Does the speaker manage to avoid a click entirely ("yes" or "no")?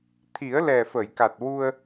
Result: yes